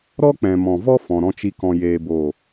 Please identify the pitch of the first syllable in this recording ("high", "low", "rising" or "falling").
high